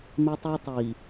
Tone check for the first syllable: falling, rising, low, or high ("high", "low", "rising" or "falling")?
high